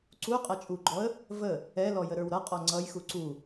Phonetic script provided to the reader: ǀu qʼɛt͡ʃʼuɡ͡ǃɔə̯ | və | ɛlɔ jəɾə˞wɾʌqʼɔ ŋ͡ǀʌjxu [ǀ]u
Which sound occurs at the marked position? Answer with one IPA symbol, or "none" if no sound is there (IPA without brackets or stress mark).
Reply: ǀ